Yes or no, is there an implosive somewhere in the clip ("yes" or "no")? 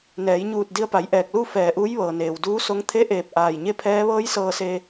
no